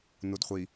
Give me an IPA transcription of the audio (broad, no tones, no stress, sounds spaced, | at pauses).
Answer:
n u d χʷ i